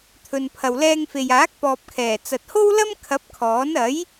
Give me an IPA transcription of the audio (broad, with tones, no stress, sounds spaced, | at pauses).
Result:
t̪ʰ ɵ˨ n pʰ ɐ˨ w l ɛː˧ ŋ f e˨ j aː˨˥ k̚ p ɔː˨ p̚ kʰ ɛː˨˩ t͡s ɐ˨ t̚ h o˥ w l ɐ˥ m kʰ ɐ˨˥ p̚ kʰ ɔː˨˥ n ɐ˨˥ j